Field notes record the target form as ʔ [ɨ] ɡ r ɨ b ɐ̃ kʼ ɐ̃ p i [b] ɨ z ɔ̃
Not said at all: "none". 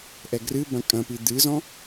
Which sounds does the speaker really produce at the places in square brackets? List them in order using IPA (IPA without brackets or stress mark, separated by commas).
ɛ, d̪